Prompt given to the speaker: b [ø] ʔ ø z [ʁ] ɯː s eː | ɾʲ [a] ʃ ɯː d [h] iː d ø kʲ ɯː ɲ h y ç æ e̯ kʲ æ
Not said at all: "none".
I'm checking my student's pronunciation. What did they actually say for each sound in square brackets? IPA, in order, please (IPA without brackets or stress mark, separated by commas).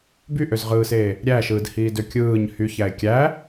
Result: y, ʁ, æ, h